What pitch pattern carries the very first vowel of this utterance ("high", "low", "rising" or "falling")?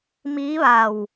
rising